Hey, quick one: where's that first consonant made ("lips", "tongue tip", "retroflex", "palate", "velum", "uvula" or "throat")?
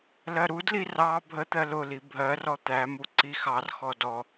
tongue tip